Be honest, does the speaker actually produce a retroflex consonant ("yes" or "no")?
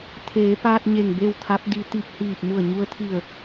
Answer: no